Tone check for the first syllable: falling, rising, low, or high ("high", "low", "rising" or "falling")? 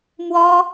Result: high